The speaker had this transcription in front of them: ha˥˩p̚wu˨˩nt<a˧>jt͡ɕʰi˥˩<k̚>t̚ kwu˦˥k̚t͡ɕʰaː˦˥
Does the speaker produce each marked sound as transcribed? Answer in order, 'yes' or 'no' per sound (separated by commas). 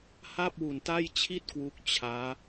no, no